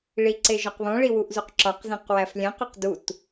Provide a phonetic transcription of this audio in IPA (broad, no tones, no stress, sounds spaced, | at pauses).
ɭ i ǀ e ʒ ɒ q β õ ɭ i w u ʔ z u q ǁ ɒ q z ẽ q w æ f lʲ æ̃ q o q d u t